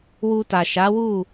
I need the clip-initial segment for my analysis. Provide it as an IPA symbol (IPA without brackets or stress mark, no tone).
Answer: w